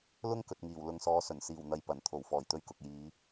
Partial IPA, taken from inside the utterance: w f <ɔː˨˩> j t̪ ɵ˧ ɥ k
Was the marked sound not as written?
no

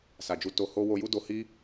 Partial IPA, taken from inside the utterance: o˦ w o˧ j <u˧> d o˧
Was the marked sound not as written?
yes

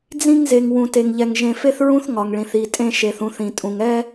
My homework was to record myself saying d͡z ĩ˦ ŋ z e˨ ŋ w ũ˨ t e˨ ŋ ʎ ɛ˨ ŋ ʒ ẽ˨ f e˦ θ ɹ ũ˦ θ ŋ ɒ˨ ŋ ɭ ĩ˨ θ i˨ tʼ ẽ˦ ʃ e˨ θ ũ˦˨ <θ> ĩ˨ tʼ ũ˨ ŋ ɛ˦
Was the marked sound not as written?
no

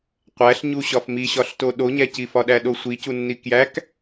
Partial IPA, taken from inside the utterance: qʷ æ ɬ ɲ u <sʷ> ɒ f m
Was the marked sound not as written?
yes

